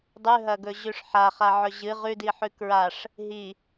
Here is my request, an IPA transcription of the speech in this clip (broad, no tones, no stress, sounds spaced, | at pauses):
dˤ ʉ ɦ ɐ ɡ ɵ ʑ ʉ ʂ ħ a χ a ʕ ɵ ʑ ɨ ʁ ʉ d i ħ ʉ k ɹ a ʂ | ɦ i